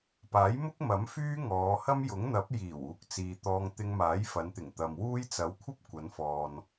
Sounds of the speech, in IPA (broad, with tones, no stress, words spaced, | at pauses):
paː˨˥jmʊ˥k̚mɐ˨˥m fyː˥ŋɔː˨˧ hɐ˥mjʊ˨˥ŋn̪ɐ˨˥p̚ jiː˨˩w uː˨˥k̚t͡siː˨t̪ɔː˧ŋ t̪ɪ˧ŋmaː˨˥jfɐ˨˧nt̪ɪ˨˩ŋ t̪ɐ˨mwuː˥j t͡sɐ˨˥wkʷʰɐ˥p̚kʷɐ˨˧nfɔː˨n